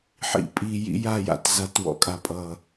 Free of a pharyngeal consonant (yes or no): no